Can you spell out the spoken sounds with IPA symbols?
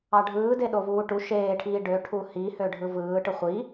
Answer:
ɑ ɖʱ ɯː d e ɗ o v uː ʈ u ʃ eː ʈʰ iː ɖ ø ʈʰ u h i h ø ɖʱ ɯ v ɯː ʈ ɯ χʷ i

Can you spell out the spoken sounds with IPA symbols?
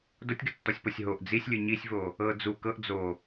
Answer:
d o tʲ ɡ ɯ tː ɔ sʲ p o sʲ ɦ o ʔ d͡z i sʲ lʲ ɯ ɲ i sʲ v o | ɤ d͡z u k ɤ ʔ d͡z o

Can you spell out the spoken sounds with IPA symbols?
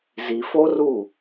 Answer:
z i˨ f o˦ r u˦˨

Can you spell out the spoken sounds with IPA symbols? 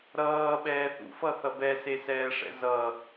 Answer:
ɾ ʌː ɓ ɛː θ ṵ f ʌ θ ʌ b ɛ s e s ɛː ʂ ɛ̰ z ʌ

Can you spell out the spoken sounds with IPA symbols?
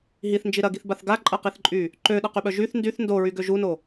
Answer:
ɦ i θ n d͡ʒ i ɾ ɐ ɡ i θ b a θ ɡ a ǃʼ ɐ q i θ ǃʼ y | ǃ ø ɗ ɐ q y ɓ œ ʒ y θ n d y θ n d o ɹ y ɡ ø ʒ u n o

